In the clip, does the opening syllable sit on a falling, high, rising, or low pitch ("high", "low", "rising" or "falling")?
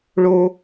low